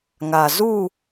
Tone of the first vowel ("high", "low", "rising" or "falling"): low